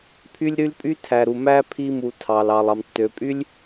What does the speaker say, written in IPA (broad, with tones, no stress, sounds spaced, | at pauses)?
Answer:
pʰ y˦ lʲ ɾ y˦ l pʼ y˦ tʰ æ˨ ɾ u˨ m æ˦ pʰ i˧ m u˨ tʰ ɑ˨ l ɑ˨ lˠ ɑ˨ m tː ø˨ pʼ y˦ lʲ